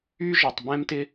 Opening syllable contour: high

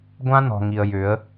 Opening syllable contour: high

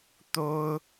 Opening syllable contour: high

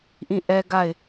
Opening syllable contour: falling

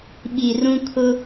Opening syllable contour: low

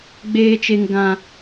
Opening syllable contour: low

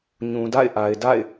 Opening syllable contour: low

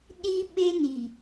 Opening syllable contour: high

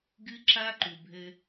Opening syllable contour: high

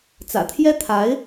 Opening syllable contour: low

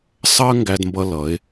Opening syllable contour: high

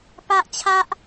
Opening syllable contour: high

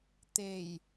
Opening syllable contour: low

